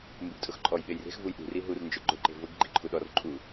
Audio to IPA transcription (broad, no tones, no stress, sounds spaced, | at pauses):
m b u ɡ tʼ ʊ x ǃʼ ɔ j ɓ e j r e̤ x v u j ɗ ṳ r i ɦ u r n d͡ʒ ʊ ɡ͡ǃ ʊ ǃ e̤ v ʊ ɡ ɡ͡ǃ i ǃʰ u ɗ ɔ r ǃʼ u